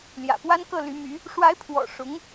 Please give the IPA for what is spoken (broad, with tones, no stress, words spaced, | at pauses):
ljä̰˨˩pwa˥nkɤ˥˩ ly˧˥my˧˥ | ʂwa˧˥ɪ̯pʰwɔ̰˨˩ ʂʊ˧˥ŋ